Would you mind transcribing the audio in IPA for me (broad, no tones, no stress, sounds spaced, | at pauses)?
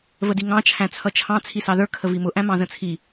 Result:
v ə d i ŋ ɑ̃ t͡ʃʰ æ̃ t͡sʰ ʌ t͡ʃʰ ɑ̃ t͡sʰ i s ɑ ð ə˞ kʰ ə v i m ʊ ʔ æ̃ m ɑ̃ z ə̃ t͡sʰ i